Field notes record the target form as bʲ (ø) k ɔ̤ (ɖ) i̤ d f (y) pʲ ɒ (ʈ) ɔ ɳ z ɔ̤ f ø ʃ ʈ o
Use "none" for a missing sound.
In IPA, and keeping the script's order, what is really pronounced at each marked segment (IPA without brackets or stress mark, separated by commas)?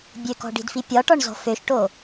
ø, ɖ, i, ʈ